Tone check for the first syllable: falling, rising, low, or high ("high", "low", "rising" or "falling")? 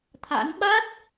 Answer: rising